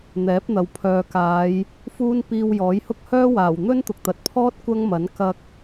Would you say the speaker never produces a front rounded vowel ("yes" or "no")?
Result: no